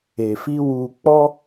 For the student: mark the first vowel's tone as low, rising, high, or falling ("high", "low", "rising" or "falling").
low